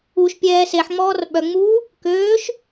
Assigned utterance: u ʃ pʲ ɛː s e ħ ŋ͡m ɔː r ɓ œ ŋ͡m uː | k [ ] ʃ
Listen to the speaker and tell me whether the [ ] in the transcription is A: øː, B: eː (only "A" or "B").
A